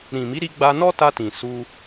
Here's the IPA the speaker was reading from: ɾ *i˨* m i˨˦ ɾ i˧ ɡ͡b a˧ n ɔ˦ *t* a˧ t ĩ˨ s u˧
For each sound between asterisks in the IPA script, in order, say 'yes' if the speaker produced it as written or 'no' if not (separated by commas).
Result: no, yes